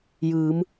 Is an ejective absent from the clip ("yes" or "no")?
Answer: yes